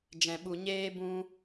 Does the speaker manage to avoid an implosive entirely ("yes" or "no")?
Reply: no